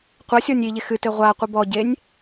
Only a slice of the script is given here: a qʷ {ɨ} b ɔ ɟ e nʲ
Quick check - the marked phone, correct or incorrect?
correct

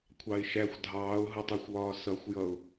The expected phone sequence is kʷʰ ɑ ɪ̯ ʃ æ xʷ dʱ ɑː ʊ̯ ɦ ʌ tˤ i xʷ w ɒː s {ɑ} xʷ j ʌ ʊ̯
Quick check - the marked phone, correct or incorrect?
incorrect: ʌ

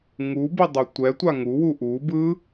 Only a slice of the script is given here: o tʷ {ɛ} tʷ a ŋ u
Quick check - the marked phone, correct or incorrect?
correct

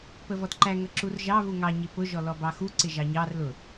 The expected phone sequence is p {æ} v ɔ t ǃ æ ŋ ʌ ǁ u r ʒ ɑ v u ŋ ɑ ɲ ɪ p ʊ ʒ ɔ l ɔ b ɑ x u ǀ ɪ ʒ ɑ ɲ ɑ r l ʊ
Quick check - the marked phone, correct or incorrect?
incorrect: ə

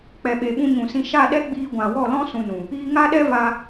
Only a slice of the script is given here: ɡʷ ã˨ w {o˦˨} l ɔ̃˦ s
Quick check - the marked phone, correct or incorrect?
incorrect: ɔ˦˨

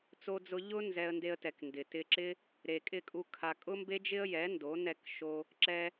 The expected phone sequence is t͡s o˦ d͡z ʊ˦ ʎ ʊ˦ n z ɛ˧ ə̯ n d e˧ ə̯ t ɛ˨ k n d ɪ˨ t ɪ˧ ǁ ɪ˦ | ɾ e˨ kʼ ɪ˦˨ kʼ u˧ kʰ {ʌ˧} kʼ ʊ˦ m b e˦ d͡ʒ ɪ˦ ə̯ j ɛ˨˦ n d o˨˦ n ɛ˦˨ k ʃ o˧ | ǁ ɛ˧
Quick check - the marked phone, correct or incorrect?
incorrect: a˧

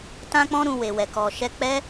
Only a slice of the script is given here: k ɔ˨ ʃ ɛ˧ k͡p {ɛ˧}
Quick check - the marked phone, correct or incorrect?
incorrect: ɛ˦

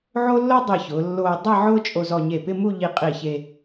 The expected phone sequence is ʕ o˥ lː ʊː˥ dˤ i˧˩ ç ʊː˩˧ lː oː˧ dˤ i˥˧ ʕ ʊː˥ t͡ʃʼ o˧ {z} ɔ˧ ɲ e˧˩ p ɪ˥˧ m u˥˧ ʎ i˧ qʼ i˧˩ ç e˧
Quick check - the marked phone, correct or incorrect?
correct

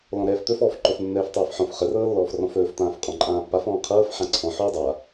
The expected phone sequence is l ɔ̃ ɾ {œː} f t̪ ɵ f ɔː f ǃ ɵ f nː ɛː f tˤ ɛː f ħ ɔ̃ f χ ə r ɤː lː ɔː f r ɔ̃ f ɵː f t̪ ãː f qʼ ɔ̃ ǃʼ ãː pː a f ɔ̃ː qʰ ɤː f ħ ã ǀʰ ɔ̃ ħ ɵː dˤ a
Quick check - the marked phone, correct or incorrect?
incorrect: ɛː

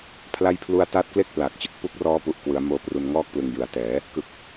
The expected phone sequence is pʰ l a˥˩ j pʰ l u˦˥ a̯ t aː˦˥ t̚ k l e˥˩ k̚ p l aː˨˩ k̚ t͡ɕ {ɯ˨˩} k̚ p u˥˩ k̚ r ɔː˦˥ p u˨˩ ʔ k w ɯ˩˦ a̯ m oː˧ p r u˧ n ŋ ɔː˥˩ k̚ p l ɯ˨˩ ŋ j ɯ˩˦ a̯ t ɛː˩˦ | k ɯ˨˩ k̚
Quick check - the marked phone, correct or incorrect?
correct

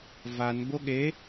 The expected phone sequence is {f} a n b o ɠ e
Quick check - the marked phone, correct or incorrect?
incorrect: v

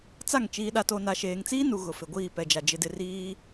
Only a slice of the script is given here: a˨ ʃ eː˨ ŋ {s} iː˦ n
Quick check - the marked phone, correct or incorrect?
incorrect: t͡s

